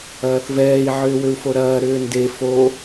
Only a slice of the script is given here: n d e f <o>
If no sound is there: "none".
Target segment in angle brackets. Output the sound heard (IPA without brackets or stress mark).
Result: o